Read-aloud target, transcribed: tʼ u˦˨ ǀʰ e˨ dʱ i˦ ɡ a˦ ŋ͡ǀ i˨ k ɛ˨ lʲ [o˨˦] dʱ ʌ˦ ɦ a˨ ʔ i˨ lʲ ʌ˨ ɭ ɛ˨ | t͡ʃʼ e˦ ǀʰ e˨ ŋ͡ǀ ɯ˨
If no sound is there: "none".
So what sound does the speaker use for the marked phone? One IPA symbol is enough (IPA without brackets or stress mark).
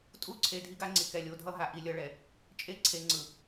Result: o˨˦